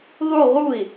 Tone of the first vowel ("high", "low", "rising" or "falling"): falling